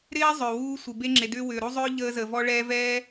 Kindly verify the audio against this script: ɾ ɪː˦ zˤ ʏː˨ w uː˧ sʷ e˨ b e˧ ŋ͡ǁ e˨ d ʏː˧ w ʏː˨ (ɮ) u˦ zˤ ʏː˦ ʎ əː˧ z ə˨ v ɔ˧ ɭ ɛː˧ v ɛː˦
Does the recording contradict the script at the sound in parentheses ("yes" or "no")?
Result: yes